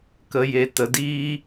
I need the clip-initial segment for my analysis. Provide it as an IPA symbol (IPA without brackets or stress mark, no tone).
k